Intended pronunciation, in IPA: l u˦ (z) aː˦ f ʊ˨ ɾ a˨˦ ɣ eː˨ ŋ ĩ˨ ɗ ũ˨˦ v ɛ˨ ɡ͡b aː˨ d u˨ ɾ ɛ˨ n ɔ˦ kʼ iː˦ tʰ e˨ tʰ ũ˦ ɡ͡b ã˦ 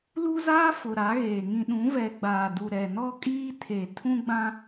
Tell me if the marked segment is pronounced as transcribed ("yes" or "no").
yes